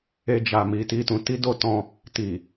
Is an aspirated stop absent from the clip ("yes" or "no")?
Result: yes